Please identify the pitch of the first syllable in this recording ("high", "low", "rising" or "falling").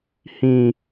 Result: low